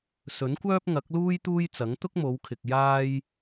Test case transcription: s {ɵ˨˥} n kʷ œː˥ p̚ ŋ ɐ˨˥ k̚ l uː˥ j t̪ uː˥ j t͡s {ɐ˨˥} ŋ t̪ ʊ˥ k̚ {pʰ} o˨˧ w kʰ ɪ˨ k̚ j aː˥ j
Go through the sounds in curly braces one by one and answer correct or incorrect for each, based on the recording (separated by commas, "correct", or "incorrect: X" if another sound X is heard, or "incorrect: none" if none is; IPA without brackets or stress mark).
correct, correct, incorrect: m